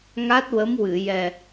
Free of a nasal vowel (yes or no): yes